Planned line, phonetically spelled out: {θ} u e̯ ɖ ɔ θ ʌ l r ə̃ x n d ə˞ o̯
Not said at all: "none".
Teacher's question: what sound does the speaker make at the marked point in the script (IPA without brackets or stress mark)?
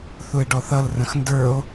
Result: θ